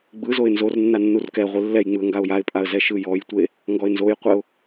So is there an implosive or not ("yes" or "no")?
no